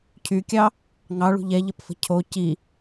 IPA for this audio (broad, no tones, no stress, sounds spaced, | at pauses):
cʰ y kʲ ɑ | ŋ ɑ ɭ ṳ ʎ ɛ ʎ ə p f ə̤ cʰ o c i